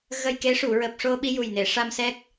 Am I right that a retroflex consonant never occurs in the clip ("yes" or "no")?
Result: no